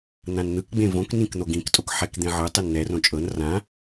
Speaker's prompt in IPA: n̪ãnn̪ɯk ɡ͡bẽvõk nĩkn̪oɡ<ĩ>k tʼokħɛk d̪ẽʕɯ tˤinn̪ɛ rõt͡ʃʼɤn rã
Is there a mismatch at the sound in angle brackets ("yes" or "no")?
no